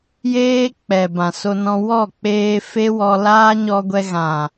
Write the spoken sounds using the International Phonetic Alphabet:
j eː˦ k͡p ɛ˨ b ã˨ s o˧ n ɔ̃˧ w ɔ˦˨ k͡p eː˧ f e˦ w ɔ˧ l aː˦ ɲ ɔ˧ ɡʷ ɛ˧ ɣ ã˨

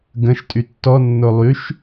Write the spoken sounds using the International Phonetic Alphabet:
ɡ ə̃ ʃ tʼ y tː ɔ nː o lˠ y ʃ

